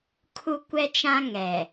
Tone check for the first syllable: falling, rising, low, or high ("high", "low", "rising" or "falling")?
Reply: high